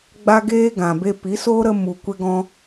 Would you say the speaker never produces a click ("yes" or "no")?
yes